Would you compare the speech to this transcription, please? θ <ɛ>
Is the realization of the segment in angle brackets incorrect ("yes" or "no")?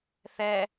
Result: no